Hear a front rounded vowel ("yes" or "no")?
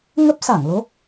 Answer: no